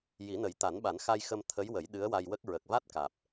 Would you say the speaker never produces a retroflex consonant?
yes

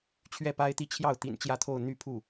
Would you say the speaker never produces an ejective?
yes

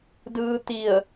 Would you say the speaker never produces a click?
yes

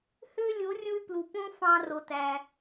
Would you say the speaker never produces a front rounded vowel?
no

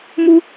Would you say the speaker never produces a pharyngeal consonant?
yes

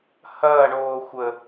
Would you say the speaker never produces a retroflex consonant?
no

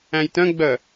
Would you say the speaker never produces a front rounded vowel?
no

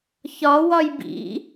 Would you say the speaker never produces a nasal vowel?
yes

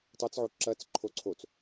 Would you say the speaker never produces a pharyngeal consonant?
no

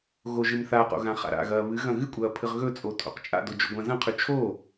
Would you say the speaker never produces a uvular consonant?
no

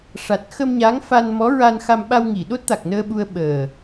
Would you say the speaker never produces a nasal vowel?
yes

